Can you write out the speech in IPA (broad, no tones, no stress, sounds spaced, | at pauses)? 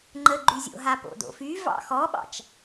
ŋ͡ǃ ə ɡ͡ǃ y zʲ o̰ ɦ a p o̰ d o̰ f y v ɑ̰ x ɔ ɓ ɑ̰ t͡ʃ